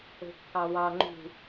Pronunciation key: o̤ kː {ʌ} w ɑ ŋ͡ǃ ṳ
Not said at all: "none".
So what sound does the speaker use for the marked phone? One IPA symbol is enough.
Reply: ɑ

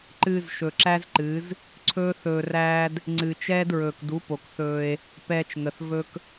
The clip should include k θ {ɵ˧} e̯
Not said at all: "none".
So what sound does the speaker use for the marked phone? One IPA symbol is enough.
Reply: ɵː˧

